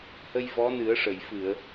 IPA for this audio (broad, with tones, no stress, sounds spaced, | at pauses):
h ə˧ j v ɔ˧˥ n ɨ˨˩˦ ə̯ ʂ ə˨˩˨ j f ɨ˨˩˨ ə̯